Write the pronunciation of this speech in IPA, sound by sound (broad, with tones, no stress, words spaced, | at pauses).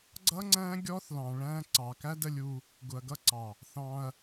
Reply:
ɡ͡ǀʌ˦ŋ͡ǀæ̃˦ ɡʲɔ˦θlɑ̃˨ɭæ̃˧ ǀɑ˨kæ˦də˧lʲu˧ | ɡʊ˨ɐ̯ɡʌ˦ǀɑ˨ | θɑ̃˧ɐ̯